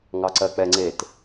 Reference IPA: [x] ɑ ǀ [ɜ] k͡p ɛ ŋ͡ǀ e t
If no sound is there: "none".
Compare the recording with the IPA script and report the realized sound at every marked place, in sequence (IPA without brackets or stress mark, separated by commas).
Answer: ŋ, ɜ